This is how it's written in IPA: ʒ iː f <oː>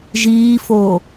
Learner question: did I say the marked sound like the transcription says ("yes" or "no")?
yes